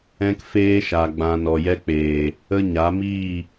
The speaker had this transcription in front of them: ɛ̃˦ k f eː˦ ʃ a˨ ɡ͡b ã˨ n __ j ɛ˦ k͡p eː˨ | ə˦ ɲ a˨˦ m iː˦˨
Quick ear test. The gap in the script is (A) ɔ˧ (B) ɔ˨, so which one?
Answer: B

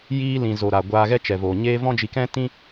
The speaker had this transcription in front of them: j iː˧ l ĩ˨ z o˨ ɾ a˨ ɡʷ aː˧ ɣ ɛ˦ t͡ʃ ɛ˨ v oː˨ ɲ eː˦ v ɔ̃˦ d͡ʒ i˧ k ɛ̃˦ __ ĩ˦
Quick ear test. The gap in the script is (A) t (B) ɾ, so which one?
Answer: A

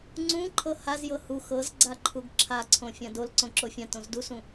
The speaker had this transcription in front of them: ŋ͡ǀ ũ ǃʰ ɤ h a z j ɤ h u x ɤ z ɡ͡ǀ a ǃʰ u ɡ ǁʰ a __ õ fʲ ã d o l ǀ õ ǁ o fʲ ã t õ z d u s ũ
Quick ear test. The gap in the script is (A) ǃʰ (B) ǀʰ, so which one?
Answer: B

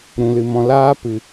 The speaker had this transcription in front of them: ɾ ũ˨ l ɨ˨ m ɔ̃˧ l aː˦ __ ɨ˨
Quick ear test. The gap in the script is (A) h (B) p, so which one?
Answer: B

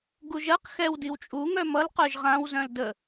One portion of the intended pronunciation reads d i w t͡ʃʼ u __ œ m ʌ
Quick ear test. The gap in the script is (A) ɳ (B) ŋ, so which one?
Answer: B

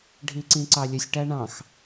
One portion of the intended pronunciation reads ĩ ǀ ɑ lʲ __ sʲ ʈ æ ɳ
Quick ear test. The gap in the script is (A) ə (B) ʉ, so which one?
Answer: A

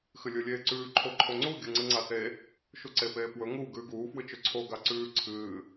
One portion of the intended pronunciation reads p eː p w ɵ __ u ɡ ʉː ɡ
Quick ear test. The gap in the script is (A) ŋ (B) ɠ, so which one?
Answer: A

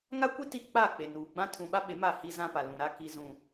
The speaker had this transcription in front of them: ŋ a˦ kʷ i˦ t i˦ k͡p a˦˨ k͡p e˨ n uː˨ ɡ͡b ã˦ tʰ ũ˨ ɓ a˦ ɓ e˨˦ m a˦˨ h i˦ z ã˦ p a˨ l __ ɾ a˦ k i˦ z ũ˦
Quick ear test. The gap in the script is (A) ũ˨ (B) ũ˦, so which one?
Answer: A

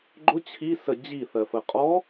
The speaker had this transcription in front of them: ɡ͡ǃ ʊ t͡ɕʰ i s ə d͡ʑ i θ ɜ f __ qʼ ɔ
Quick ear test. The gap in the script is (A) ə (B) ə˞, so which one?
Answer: A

